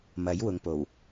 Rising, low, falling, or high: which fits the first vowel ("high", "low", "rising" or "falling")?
rising